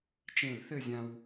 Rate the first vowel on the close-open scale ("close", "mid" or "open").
mid